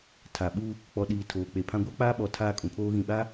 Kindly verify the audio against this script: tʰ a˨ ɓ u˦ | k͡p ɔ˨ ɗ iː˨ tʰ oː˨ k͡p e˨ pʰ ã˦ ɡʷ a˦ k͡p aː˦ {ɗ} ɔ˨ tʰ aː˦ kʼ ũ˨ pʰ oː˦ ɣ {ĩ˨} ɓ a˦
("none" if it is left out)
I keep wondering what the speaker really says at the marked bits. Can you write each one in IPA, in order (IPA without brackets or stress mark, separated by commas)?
ɓ, ĩ˨